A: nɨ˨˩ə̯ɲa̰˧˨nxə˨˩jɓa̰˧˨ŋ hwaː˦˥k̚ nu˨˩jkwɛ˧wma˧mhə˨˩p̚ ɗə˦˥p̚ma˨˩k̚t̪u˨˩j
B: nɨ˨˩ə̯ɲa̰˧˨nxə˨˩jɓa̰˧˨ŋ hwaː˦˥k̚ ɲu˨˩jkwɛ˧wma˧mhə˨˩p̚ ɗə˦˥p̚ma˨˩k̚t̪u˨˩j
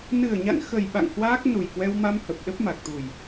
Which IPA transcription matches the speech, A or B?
A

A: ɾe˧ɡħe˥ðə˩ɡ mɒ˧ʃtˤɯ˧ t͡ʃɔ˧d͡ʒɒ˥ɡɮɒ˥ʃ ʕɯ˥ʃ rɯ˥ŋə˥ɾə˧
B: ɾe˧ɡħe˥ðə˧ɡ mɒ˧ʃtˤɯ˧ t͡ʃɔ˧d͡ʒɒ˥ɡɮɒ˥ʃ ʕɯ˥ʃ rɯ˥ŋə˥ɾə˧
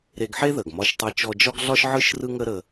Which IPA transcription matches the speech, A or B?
A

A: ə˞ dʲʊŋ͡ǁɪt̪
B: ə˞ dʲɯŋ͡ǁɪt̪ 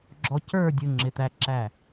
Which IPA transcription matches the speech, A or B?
A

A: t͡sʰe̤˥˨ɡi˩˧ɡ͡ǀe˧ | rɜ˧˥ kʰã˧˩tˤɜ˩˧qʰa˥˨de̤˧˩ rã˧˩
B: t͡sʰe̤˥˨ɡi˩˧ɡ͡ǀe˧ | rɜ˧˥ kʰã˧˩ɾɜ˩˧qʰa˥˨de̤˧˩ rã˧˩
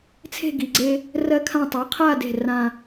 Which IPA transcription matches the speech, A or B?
A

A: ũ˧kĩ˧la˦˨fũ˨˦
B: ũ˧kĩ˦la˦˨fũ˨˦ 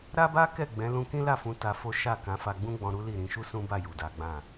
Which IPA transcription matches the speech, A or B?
B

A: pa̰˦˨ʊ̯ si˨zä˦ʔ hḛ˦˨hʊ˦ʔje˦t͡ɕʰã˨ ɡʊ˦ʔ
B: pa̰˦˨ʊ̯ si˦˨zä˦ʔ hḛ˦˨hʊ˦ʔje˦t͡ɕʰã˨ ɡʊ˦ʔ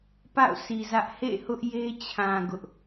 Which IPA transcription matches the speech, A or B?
A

